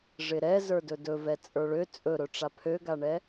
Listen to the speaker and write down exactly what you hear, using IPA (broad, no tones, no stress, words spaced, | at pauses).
ʐɪɾɛ zə˞dɵdɵvɛ t͡sʼə˞ɭø t͡sʼɵɾɵ ʈ͡ʂapʰøɡaɳɛ